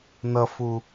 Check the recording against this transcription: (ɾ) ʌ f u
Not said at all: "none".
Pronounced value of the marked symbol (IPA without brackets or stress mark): n